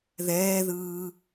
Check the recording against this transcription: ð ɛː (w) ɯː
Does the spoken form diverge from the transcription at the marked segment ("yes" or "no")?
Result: yes